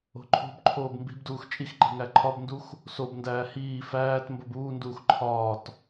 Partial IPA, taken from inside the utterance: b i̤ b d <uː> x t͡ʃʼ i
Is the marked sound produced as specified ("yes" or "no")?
yes